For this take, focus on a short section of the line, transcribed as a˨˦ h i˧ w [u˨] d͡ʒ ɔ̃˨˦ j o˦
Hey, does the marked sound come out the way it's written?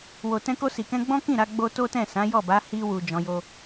yes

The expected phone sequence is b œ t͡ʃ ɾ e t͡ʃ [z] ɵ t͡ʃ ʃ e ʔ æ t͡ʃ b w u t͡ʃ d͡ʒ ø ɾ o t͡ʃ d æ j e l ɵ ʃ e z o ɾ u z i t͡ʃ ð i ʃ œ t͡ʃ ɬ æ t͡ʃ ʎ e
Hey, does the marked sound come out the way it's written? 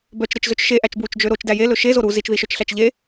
yes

